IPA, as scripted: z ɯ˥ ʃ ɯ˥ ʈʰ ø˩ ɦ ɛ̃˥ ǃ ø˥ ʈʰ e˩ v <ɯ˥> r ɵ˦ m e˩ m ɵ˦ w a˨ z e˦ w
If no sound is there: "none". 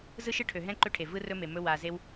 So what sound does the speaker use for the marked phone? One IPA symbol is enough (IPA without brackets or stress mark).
ɯ˥